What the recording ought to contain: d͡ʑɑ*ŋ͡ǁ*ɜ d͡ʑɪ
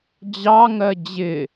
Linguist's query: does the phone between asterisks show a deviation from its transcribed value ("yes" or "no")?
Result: yes